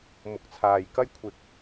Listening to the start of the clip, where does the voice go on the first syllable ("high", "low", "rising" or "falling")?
rising